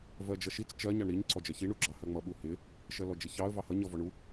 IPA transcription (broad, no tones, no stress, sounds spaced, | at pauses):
v ɜ d͡ʒ ʌ ʃ i t͡s t͡ʃ ɜ ɲ ɑ ɳ ɾ i ɲ ǀ ɔ d͡ʒ ɜ ç i ɳ u ɡ͡ǁ ɑ h ɜ ŋ͡m ʌ ɓ u h ɪ | ʃ ɜ l ɔ d͡ʒ ɪ ç ɑ ə̯ v ɑ h ʌ ɲ ʌ v ɔ ɳ u